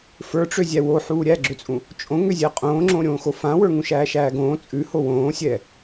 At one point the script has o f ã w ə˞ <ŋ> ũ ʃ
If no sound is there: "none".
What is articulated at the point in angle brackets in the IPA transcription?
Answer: ŋ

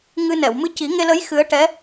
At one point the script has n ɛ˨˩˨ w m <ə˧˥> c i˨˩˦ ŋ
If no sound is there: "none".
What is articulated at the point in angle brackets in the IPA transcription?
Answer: ɨ˧˥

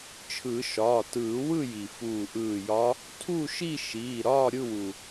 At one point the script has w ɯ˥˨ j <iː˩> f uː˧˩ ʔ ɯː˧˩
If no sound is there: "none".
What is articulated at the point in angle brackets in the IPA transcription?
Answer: i˩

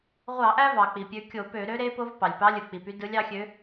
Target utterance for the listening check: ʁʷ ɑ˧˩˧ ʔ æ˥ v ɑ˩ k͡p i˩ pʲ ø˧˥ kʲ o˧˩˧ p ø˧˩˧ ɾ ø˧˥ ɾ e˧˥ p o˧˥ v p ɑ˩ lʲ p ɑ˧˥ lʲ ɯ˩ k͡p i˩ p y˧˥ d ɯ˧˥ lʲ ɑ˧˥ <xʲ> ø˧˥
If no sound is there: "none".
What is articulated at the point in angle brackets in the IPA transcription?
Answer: xʲ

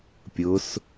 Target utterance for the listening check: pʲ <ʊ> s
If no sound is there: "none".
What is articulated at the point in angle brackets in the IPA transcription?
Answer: ʊ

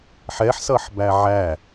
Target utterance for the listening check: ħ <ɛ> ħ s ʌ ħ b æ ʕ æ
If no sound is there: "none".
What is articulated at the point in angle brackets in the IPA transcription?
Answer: ɛ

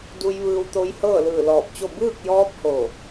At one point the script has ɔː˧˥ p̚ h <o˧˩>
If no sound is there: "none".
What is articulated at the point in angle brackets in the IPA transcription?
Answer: o˧˩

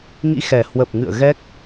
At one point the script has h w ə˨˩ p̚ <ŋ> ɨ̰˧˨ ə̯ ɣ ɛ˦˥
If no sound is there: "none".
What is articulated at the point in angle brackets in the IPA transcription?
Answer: ŋ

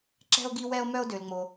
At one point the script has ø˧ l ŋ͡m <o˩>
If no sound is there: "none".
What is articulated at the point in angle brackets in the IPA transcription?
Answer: o˧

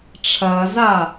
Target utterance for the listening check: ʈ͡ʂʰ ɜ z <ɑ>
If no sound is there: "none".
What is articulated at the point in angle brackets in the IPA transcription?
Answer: a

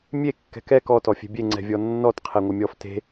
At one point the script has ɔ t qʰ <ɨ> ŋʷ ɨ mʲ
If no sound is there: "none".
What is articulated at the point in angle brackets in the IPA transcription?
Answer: e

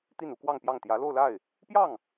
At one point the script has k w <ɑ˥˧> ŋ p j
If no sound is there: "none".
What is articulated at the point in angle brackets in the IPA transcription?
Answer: ɑ˥˧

